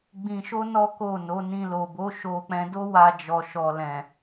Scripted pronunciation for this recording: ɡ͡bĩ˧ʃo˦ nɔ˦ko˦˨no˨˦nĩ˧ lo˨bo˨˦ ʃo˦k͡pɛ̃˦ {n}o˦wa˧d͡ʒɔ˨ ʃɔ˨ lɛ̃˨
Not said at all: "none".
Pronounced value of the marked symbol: d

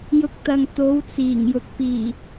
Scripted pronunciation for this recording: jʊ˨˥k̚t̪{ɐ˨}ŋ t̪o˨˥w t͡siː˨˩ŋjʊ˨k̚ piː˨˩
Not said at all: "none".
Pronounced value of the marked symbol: ɐ˨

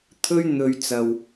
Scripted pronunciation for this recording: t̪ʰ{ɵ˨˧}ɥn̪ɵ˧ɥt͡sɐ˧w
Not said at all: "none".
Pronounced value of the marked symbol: ɵ˥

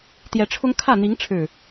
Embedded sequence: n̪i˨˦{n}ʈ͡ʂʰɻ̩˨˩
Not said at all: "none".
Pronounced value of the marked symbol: ŋ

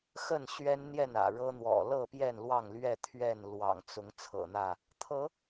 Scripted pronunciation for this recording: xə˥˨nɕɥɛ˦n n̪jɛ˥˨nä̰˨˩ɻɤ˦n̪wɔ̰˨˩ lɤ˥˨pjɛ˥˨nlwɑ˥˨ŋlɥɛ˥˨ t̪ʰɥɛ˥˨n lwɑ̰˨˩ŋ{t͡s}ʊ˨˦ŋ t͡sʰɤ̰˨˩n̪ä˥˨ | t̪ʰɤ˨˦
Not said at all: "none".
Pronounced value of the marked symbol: t͡s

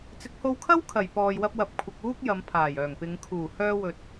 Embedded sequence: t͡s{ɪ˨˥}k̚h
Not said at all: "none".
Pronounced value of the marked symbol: ɪ˨˥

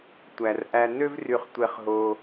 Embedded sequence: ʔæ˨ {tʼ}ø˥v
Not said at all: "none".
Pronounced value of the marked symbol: n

